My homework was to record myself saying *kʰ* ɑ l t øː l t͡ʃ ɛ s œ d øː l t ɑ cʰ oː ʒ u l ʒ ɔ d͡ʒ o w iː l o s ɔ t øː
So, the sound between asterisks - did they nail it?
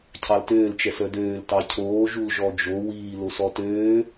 no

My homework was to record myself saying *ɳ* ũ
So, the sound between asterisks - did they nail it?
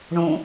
yes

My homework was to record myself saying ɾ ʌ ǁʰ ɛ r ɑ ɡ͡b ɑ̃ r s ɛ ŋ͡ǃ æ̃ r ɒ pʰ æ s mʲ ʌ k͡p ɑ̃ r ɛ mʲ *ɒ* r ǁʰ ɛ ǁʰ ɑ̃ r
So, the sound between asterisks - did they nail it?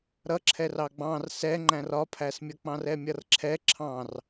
no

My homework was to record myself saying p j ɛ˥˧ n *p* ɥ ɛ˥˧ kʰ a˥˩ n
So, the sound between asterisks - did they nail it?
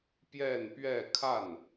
yes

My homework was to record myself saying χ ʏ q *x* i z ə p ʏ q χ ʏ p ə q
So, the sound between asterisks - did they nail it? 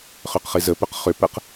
no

